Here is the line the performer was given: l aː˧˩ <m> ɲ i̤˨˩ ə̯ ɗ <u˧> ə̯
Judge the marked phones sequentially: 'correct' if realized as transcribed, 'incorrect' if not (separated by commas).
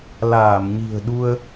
correct, correct